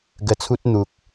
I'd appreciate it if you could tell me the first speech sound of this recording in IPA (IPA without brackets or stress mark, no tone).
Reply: ɡ